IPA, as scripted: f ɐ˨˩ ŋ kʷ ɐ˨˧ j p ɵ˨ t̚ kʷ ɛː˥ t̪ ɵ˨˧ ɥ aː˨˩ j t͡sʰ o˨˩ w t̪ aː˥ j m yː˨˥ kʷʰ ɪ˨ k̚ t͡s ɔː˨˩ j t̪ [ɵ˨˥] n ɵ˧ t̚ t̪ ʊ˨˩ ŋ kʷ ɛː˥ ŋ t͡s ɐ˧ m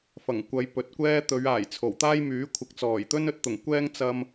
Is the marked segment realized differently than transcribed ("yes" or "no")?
yes